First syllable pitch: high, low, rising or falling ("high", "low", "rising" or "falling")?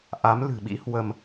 rising